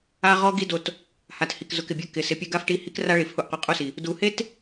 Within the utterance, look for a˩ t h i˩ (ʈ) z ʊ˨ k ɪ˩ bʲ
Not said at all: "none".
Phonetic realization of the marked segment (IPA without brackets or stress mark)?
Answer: k